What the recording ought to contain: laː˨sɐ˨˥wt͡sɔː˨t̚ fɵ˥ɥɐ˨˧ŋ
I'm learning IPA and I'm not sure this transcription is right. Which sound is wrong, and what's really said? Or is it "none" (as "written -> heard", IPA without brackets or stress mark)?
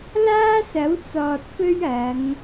aː˨ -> aː˥